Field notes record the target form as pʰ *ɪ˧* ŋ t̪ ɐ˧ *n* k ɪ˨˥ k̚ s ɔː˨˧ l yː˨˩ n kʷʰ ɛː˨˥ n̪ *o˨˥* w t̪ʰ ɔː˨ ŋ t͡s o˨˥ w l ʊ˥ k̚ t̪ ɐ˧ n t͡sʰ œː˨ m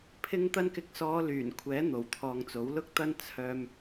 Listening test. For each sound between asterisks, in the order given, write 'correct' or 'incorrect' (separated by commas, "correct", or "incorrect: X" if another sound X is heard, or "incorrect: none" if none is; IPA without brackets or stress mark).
correct, correct, incorrect: o˨˩